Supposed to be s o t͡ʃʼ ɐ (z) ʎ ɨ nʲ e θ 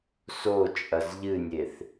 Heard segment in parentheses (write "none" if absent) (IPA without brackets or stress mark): z